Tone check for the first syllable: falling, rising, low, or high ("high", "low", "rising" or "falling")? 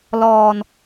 low